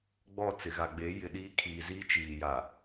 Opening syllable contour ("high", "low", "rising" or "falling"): falling